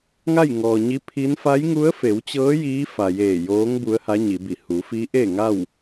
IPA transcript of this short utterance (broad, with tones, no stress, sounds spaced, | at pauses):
ŋ a˥˨ j ŋ ɔː˩ ɲ i˧˥ pʰ i˧˥ n f a˧˥ j ŋ u˧˥ ə̯ f e˩˧ w t͡ɕ ɤː˧˥ j iː˧˥ f a˩ j eː˧˩ j oː˧˥ ŋ b u˧˥ ə̯ h a˧˥ ɲ i˩˧ b i˧˩ h u˩˧ f i˧˥ ʔ eː˥˨ ŋ a˥˨ w